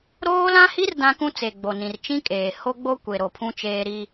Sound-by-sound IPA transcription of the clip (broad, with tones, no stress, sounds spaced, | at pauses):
ɾ oː˦ l ã˦ h i˦ r d ã˦ k ũ˦ t͡s e˨ ɡ͡b o˨ n ĩ˨ r t͡ʃ ĩ˦ kʼ eː˨ h o˦ ɡ͡b o˦ kʷ e˨ ɾ o˨ pʰ ũ˦ t͡ʃ eː˦ ɾ i˦